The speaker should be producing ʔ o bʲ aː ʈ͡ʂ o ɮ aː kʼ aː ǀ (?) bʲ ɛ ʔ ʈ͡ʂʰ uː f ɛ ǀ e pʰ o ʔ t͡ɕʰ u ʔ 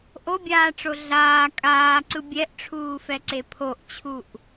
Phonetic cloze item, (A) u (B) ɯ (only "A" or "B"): B